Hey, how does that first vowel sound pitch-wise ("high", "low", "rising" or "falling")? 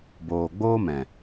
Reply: low